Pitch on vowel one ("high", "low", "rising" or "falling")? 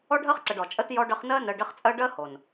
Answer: high